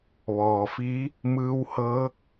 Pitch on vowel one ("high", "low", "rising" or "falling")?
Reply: low